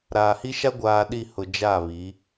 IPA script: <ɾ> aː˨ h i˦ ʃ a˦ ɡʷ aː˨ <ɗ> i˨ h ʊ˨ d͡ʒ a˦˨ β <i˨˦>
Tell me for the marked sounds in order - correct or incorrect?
correct, correct, correct

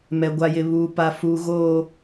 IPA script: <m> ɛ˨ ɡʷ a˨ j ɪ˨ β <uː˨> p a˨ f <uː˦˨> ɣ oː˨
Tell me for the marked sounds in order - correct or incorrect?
correct, correct, incorrect

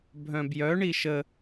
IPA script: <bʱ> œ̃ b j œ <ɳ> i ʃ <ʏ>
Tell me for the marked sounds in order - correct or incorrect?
correct, correct, incorrect

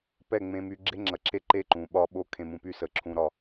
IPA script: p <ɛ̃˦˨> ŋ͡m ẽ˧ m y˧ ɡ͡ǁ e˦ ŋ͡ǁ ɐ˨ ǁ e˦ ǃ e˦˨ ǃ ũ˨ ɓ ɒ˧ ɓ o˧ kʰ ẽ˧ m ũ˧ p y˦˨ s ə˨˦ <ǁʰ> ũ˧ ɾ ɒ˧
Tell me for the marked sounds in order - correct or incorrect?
incorrect, correct

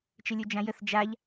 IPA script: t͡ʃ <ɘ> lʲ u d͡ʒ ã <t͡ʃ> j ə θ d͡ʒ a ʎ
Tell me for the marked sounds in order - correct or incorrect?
correct, incorrect

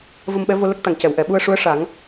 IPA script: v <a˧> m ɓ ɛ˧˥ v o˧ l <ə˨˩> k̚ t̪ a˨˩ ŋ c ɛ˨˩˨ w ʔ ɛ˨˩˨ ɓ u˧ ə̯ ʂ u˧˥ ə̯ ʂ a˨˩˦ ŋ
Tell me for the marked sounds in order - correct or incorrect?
incorrect, incorrect

